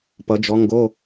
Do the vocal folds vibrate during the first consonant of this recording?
no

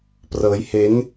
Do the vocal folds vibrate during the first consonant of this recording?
no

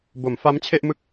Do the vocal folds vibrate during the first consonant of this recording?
yes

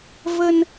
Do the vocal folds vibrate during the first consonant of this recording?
yes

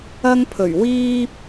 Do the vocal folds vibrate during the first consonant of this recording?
yes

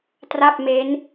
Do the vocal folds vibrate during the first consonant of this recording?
no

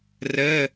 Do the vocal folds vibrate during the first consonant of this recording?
yes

